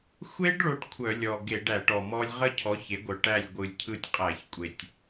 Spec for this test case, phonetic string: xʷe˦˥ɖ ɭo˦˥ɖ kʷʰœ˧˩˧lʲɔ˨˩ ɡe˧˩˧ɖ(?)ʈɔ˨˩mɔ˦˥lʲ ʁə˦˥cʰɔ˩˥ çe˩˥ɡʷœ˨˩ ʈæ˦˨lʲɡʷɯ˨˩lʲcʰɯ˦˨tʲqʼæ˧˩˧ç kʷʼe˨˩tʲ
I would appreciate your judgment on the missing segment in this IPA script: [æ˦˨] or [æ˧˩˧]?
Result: æ˧˩˧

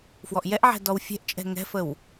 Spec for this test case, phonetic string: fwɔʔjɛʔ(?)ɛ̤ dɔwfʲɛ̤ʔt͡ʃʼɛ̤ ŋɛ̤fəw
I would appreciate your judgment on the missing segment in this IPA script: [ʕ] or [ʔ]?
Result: ʕ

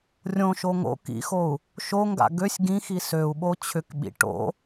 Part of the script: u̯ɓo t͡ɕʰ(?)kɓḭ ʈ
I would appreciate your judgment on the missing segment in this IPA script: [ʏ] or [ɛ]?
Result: ʏ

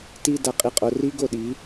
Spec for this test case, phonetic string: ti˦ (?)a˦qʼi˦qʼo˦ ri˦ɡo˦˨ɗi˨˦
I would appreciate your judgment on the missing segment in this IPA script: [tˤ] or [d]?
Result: d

